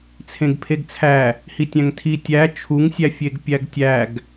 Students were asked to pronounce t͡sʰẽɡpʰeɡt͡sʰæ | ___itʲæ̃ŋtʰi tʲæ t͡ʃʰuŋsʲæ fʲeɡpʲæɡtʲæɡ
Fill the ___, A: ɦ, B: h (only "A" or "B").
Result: B